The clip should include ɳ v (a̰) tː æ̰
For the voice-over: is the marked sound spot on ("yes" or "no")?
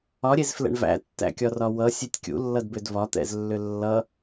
no